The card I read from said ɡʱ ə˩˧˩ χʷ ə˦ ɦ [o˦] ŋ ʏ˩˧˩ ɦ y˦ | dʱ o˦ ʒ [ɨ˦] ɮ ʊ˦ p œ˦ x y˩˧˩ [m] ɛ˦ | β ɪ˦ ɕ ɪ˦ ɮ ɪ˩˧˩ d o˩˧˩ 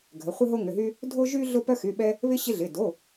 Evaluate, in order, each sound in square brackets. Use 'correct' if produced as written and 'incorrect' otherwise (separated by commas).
correct, incorrect, incorrect